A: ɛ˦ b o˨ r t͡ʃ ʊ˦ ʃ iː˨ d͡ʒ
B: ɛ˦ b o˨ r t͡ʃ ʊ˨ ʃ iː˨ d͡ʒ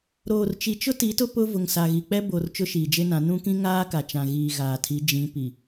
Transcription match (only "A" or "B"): A